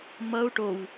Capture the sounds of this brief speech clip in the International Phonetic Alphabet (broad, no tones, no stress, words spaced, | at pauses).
mʌu̯ ʈow